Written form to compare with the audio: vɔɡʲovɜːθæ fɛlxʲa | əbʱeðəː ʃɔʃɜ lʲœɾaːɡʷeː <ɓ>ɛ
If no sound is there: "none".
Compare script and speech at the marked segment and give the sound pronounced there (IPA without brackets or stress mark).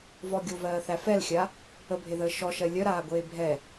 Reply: bʱ